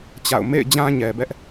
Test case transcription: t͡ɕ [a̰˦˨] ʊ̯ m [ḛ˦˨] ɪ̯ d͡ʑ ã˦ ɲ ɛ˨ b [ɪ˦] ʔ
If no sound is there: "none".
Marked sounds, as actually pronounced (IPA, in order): a̰˦˨, ḛ˦˨, ɛ˦

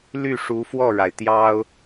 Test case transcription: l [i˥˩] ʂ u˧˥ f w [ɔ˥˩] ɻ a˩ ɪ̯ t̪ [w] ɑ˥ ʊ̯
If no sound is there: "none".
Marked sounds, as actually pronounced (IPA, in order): y˥˩, ɔ˥˩, j

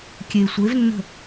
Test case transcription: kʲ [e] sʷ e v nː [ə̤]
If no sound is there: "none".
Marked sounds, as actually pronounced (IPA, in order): e, ə̤

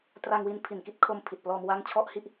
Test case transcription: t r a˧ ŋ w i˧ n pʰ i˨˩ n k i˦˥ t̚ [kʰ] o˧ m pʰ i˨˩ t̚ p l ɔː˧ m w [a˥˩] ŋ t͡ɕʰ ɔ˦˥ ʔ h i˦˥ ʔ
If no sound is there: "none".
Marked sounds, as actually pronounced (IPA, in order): kʰ, a˦˥

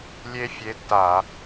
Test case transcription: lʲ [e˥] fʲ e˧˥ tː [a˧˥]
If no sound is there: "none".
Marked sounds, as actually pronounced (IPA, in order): e˥, a˧˩˧

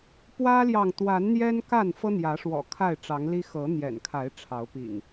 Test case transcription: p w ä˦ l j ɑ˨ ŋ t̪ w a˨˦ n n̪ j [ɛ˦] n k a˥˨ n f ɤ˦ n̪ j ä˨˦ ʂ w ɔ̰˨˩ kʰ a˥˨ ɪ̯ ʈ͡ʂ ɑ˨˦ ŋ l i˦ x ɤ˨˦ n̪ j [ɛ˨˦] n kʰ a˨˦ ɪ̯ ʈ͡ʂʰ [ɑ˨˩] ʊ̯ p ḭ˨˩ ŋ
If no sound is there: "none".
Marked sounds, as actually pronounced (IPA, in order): ɛ˦, ɛ̰˨˩, ɑ˨˦

